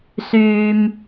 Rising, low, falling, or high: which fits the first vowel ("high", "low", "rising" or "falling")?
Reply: high